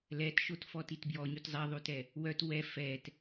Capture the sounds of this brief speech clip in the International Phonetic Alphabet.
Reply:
lɛtʃotfɔtit bjɔɲyt zˤiðˤytɛ | wœt wɛ fɛt

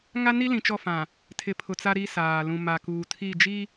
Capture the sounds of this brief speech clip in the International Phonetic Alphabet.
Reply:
ŋa˦ni˦ lĩ˨t͡ʃɔ˦˨fã˨ | tʰɪ˨pʰʊ˨ t͡sa˦ ɾi˦saː˨ lũ˨ma˨kuː˨tʰi˦˨ d͡ʒi˦

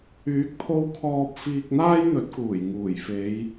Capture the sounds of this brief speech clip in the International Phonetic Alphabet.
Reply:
yː˨˥k̚pʰo˧w kʰɔː˧p̚fiː˧k̚ n̪aː˥jn̪ɵ˨˥t̚kuː˨˩j ŋuː˨˩jfe˨˧j

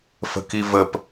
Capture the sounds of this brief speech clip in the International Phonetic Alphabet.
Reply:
fə̤kivəp

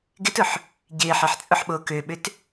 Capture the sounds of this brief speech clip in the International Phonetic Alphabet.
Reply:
ɡɪtʊħ | ɟɪːħeħt͡sʼʊħɓoː køɓʏt

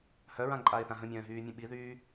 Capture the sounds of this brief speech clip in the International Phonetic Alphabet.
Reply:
hœɹãǃʼaɪ̯θã ɦə̃mʲœ̃ːɦyːmʲə̃ ɓiðyː

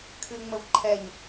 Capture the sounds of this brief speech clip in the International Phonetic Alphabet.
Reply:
kʰɨŋ͡məv ǃʰɛɲ

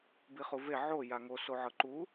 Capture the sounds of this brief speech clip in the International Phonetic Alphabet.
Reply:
biχuve ʕo jaŋo soʕɤǃu

